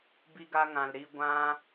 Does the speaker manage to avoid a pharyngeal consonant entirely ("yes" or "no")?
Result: yes